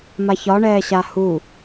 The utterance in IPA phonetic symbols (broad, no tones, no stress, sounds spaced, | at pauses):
m a ç ɒ ɳ ɛː ɕ a h u